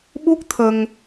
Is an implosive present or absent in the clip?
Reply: present